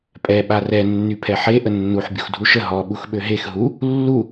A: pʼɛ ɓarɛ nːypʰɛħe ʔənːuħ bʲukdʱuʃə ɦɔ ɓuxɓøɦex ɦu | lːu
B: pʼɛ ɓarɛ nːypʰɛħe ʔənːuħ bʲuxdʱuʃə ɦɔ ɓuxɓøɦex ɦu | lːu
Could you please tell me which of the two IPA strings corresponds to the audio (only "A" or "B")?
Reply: B